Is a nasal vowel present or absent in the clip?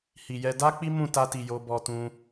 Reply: present